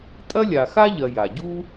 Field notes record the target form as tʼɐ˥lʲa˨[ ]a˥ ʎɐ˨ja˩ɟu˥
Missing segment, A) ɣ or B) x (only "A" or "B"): B